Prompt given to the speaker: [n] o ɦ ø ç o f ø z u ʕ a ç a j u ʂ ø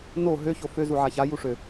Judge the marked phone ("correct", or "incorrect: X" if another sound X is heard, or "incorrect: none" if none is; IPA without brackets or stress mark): correct